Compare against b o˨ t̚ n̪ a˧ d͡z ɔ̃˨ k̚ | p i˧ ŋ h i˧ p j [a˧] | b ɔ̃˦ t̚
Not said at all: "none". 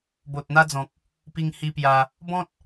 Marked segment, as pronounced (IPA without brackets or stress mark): a˧